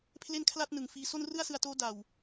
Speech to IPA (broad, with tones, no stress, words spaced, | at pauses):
pʰle˥˩nkʰla˥˩t̚ nɯ˨˩ŋfiː˧ so˥˩nrɯ˥˩a̯sɯ˧a̯toː˦˥ da˨˩w